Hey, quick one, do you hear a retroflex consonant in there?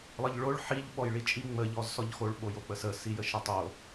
yes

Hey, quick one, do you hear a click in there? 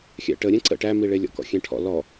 yes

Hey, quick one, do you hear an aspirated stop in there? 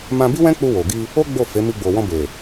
no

